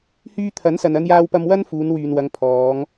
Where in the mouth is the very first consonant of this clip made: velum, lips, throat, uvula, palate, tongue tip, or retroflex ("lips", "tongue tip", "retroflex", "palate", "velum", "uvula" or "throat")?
throat